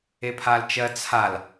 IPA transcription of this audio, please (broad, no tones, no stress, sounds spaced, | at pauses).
e pʰ a l t͡ʃ ɜ t͡sʰ a l